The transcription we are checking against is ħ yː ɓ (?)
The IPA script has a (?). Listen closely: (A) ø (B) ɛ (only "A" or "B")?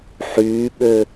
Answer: A